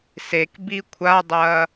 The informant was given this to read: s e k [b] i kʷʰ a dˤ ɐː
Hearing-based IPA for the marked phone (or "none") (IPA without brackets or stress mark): b